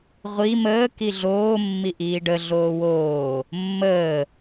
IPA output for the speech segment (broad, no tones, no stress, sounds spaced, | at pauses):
ʁʷ i m əː k i ɮ oː mː i ʔ iː ɖ ə ɮ oː w oː | mː əː